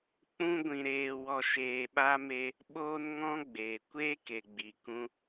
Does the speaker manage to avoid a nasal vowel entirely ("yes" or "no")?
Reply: no